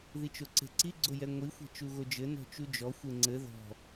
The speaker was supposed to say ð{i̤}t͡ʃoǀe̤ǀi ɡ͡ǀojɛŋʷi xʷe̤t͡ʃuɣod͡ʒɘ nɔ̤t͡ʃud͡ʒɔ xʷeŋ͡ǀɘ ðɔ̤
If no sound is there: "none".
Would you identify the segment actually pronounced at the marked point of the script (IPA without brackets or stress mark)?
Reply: i